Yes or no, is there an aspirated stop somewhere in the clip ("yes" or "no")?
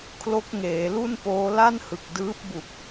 yes